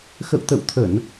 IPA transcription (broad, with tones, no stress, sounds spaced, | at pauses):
x ə̰˧˨ w t̪ ə̰˧˨ w t̪ʰ ə˧˩˨ n